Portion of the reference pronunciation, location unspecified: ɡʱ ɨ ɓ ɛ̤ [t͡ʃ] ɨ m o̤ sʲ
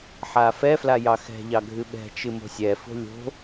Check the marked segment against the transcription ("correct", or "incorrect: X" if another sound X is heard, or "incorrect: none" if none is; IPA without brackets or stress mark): correct